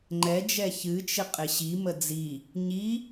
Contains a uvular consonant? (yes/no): yes